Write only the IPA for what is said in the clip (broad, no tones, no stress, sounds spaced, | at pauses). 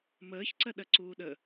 m əː ç ǀ ɜ ɗ ɜ ǀ uː ɗ ə